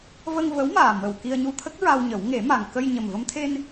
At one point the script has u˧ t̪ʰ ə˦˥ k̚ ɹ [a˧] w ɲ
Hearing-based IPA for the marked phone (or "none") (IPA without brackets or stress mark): a˧